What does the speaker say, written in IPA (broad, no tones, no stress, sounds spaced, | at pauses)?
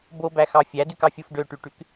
b o b æ x ɑ fʲ æ d y k ɑ fʲ u f ɖ ø ʈ y ʈ y k